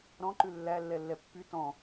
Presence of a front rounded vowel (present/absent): present